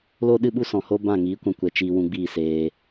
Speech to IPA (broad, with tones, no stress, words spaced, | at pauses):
lo˦ɗɨ˦ɓu˦sɔ̃˨ ho˦ bã˦˨ ŋiː˨˦ kʷã˧kʷɛ˨ t͡ʃiː˧wũ˧ɡ͡biː˦˨seː˧